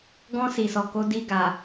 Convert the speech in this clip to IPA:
ɡ ɔ̃˧ s i˨ s ɔ˨ k o˨˦ d i˧ ɡ a˨

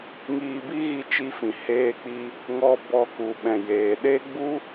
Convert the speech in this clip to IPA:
ŋ iː˧ b i˦ ɣ i˧ t͡ʃ i˧ f ĩ˨ h eː˧ k͡p i˧ | ŋ ɔ˧ b ɔ˧ k u˨ ɓ ɛ̃˨ j eː˨ ɗ e˦ ɡ͡b u˦

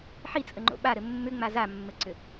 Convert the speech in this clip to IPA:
ħ i t͡sʼ ə ŋ͡ǃ o̰ ɓ a ɾ ɘ mː ʏ ŋ͡m a z a mː ɘ ǀ ʏ

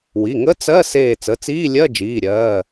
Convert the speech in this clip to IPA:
w i˩˧˩ ŋ ə˧˥˧ t͡s ɜ˧˥˧ s eː˧˩ t͡s ə˩˧˩ t͡s iː˧˥˧ lʲ ɜ˧˥˧ d͡ʒ iː˩˧˩ ɾʲ ɜː˩˧˩

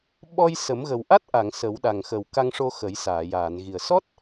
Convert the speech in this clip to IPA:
ɓ ɔ˧ j s ə˨˩˦ m ɣ ə˨˩ w ʔ a˦˥ t̚ ʔ a˨˩˨ ŋ s ə˨˩˦ w ɗ a˨˩ ŋ x ə˨˩ w k a˧ ŋ ʂ o˧ x ə˨˩˦ j s aː˨˩˨ j aː˨˩˨ n ɣ i˨˩ ə̯ s ɔ˦˥ t̚

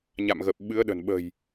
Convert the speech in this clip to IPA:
ɲ a̰˧˨ m ɣ ə˨˩ p̚ ɓ ɨ˨˦ ə̯ ɗ ə̤˨˩ n ɓ ə̤˨˩ j

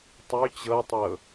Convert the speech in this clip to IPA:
tˤ y t͡ɕ ɤ tˤ ɤ

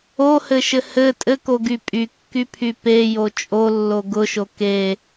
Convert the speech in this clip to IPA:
o h ɘ ʃ ɘ h ɘ tʼ ɘ k o ɡ y pʼ y kː y pʰ y p e j o t͡ʃʼ o lː o ɡ ʊ ʃ o k e

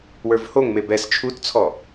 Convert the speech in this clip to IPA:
w ə˞ v h o ŋ m e b ɛ s t͡ʃʰ u t t͡sʰ ɔ

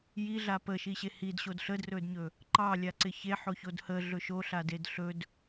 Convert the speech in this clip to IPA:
j i ɮ a p ə ʃ i ɕ e h i d ɕ o d ɬ ə d r ɵ d ɲ ɵ | ǃ ɑ lʲ a ǀ ɪ ç e ħ o ç o d h ə ɮ ɵ ʃ o ɬ a d e d ɬ ɵ d

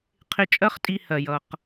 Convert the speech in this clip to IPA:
qʰ ɪ˧ t͡ʃʼ ɜ˦ χ tʼ i˧ h ɜ˨ j ʌ˨ q

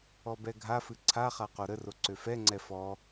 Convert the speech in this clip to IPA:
ɔ b ɛ ɡʱ a f ɨ ǀʰ a χ a q o ɾ ə r o ǀ ø f ɛ ŋ͡ǀ ɛ f ɔ

